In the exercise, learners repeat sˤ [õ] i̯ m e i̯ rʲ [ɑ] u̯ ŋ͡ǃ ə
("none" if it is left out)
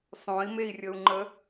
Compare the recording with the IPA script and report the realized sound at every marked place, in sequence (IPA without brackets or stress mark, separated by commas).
õ, ə